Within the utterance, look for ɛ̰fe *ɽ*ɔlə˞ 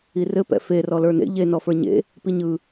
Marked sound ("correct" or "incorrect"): incorrect